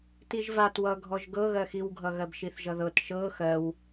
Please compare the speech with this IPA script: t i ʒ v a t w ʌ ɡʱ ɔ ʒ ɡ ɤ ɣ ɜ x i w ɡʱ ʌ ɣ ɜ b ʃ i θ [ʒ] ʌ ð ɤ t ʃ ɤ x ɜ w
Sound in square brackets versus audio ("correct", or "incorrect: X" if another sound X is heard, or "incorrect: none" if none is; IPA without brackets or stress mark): correct